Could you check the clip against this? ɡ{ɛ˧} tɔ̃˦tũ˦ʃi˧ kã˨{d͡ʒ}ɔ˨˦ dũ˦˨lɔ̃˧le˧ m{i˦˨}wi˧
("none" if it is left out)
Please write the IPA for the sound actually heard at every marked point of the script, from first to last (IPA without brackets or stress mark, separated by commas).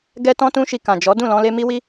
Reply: ɛ˧, d͡ʒ, i˧